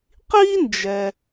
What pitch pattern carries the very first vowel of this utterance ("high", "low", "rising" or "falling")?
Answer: high